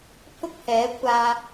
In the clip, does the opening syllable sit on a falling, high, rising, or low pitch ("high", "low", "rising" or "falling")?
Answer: high